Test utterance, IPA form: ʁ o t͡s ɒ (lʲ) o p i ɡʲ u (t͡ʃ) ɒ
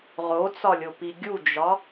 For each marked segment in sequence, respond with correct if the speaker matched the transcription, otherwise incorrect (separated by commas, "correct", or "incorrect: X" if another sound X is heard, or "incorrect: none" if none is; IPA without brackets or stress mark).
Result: correct, incorrect: d͡ʒ